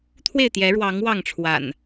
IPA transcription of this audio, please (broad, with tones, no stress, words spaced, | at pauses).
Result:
t̪ʰwe˥˨ɪ̯t̪jɛ˨˦ɻwɑ˨˦ŋ wɑ˥˨ŋʈ͡ʂʰwa̰˨˩n